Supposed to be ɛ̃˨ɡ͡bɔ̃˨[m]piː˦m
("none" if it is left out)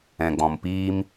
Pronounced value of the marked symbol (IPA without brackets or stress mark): m